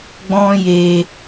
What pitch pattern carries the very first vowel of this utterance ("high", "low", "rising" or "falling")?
high